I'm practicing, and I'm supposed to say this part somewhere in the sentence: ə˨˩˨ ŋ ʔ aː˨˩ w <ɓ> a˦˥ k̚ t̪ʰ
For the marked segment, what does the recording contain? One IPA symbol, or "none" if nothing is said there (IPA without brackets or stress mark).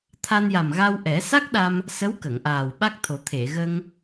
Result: ɓ